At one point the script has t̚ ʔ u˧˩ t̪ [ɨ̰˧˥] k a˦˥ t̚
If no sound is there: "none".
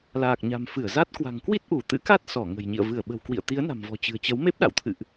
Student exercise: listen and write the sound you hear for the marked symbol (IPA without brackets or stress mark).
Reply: ɨ̰˧˥